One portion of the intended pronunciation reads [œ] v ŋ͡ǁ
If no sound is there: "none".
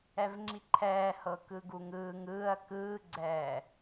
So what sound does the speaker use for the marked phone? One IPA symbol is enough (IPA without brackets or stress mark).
ɛ